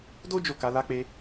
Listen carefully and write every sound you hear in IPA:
do˦ d͡ʒo˦˨ka˧ la˧k͡pe˧

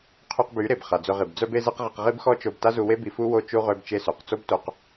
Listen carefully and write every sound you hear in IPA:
qʰy˧qby˨˦ ɾe˨bχa˨d͡zø˧ʁi˨b d͡zœ˦be˦ze˦qʁi˧q ʁi˦bxɔ˦t͡ʃo˧b ta˦zu˧we˦bi˧ fu˦ wo˦t͡ʃu˦ ʁø˦bt͡ʃe˦sø˨q t͡so˦bto˧q

